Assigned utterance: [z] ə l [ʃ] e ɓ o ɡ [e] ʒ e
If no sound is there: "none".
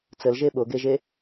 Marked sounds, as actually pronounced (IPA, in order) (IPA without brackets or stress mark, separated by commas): t͡s, ʒ, e